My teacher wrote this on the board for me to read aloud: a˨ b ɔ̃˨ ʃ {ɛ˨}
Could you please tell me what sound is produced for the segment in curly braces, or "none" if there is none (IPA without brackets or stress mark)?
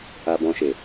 e˨